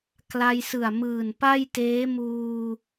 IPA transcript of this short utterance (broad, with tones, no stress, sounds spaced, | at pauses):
k l a˧ j s ɯ˨˩ a̯ m ɯː˨˩ n p a˥˩ j t eː˦˥ m uː˧